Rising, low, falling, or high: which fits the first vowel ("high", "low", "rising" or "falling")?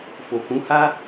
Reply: low